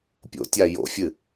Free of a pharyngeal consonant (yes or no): yes